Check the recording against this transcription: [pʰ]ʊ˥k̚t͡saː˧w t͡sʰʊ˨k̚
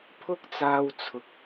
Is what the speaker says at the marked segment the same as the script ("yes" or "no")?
yes